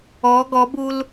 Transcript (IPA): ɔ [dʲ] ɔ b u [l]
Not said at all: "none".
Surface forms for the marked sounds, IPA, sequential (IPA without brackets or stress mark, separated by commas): ɡ, l